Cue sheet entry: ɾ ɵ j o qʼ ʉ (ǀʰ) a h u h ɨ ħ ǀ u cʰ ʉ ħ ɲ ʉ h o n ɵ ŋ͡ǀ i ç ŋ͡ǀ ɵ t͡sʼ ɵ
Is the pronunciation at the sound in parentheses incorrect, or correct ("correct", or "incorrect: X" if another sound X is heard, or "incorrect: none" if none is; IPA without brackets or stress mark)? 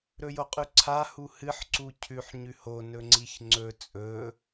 correct